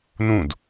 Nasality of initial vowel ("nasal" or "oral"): nasal